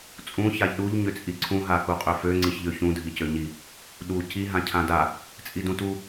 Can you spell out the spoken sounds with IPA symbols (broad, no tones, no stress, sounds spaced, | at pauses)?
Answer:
t͡sʼ ũ ç a ʎ ɗ u ʎ ɲ ʏ t͡sʼ i ǀʰ ũ ɦ a k u qʼ ø f ø ŋ͡ǀ i ç ʎ ø ç ũ dʱ i c ø ɲ i | ɗ u c i ɦ ã cʰ ã d a | t͡sʼ i d ũ t u